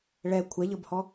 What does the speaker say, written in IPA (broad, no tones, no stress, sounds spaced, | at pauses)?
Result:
ɭ ɛ kʷʰ ɛ ʎ ɤ b h ɔ